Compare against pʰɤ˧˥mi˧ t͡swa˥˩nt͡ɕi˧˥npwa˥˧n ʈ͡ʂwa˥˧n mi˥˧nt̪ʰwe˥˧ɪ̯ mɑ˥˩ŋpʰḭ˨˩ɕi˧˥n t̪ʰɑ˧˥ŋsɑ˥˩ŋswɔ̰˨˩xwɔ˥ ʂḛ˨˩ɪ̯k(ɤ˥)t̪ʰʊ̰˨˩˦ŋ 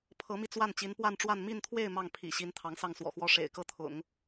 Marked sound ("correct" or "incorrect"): incorrect